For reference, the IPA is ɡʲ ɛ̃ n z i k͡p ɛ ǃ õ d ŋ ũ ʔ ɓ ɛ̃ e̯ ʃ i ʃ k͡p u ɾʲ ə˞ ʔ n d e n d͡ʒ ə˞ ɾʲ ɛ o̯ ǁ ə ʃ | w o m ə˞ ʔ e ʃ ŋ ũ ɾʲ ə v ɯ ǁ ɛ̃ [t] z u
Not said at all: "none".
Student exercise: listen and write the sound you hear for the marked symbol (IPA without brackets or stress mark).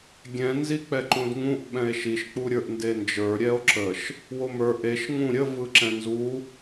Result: n